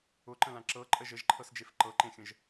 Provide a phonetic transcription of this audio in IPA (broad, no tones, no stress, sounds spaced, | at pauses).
ʊ ǃ ə̃ l ã ǁ ɤ ǃʼ ə ʒ ə ʒ ǃʰ ɤ s d͡ʒ e f ǃ ɤ ǃ ẽ xʲ ə̃ ʒ